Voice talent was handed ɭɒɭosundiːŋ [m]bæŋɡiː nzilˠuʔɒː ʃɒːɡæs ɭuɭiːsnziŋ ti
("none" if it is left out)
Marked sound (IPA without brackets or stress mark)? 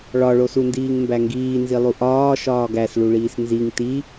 m